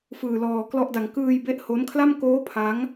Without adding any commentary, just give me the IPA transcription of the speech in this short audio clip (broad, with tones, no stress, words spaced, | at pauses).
fɯː˧lɔː˧klɔ˥˩ʔda˧ŋ kɯː˧j be˦˥ʔho˦˥nkʰla˥˩m koː˦˥ pʰa˦˥ŋ